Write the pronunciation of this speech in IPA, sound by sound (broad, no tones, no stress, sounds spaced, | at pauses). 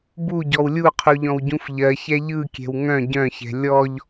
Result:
b u ɟ ɔ w lʲ u qʰ u ʎ ɔ̃ w ɟ ũ f ʎ ɜ ç ɛ ʎ ɯ kʲ ɛ̤ w ŋ œ̃ ɟ œ̃ ç ɛ̤ lʲ ɔ ʎ